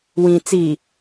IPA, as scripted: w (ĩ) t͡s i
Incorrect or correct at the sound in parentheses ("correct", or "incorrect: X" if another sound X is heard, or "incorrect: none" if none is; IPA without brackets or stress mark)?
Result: correct